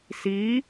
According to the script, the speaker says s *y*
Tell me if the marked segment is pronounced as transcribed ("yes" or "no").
no